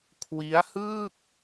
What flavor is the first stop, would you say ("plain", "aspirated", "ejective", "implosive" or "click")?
aspirated